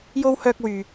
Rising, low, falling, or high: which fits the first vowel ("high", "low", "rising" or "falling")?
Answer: high